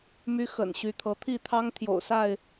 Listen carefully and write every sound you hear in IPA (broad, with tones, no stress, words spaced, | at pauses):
my˦xə̰˨˩n ɕy˨˦t̪ʰɤ˨˦ t̪ʰi˥˨ t̪ʰɑ˦ŋ t̪ʰjo̰˨˩ʊ̯sa˥˨ɪ̯